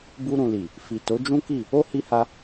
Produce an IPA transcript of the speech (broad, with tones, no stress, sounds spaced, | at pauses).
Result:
b u˧ ɾ ũ˨ l i˨ | f i˨ t o˨˦ d͡ʒ ũ˦ k i˦˨ | o˦ h i˧ h a˧